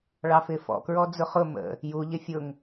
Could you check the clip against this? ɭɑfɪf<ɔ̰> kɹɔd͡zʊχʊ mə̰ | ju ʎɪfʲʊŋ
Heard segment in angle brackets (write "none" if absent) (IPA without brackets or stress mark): ɔ̰